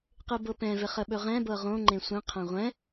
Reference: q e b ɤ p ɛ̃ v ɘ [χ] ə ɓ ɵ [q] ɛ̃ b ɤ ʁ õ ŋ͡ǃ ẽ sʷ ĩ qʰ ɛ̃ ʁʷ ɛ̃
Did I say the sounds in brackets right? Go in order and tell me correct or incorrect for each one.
correct, incorrect

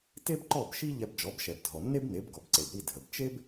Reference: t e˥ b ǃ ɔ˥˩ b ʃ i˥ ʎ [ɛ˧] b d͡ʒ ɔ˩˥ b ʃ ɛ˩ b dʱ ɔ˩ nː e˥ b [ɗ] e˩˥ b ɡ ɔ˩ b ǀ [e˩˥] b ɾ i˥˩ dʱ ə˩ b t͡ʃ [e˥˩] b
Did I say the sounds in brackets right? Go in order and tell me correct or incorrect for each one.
correct, incorrect, incorrect, incorrect

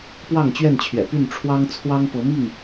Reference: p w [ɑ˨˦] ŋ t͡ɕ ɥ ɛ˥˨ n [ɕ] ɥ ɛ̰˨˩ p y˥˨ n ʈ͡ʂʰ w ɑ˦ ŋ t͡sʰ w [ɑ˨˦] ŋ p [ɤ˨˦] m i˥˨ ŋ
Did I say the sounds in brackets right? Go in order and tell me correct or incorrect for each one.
incorrect, incorrect, incorrect, correct

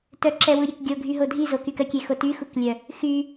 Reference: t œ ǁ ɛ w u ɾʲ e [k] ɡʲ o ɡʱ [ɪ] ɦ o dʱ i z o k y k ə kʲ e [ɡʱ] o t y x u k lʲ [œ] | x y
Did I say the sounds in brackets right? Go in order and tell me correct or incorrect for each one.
correct, incorrect, incorrect, correct

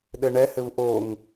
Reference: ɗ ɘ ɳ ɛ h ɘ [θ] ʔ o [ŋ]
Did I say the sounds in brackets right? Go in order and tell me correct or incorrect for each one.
incorrect, correct

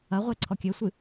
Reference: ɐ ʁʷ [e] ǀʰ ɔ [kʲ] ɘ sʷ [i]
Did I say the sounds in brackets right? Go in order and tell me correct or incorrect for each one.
correct, correct, incorrect

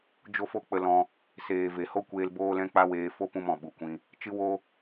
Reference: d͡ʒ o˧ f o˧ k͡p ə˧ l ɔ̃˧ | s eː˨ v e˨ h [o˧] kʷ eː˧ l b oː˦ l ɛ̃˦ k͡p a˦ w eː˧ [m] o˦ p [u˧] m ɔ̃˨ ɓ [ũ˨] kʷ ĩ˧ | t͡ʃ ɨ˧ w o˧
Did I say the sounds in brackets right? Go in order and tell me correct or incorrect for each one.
incorrect, incorrect, incorrect, incorrect

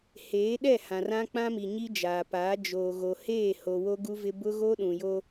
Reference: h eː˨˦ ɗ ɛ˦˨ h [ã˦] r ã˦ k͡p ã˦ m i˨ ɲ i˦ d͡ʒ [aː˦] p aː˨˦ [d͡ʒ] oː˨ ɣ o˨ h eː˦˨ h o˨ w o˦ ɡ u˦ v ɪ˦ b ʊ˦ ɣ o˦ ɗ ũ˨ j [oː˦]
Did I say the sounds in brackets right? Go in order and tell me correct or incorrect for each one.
incorrect, incorrect, correct, incorrect

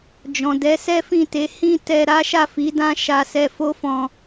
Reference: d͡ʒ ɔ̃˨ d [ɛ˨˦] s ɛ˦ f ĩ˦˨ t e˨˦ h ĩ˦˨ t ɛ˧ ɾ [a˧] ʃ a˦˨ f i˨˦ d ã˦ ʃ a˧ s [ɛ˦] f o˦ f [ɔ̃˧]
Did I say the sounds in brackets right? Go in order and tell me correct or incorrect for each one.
correct, incorrect, incorrect, correct

